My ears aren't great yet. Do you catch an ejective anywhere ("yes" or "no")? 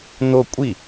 yes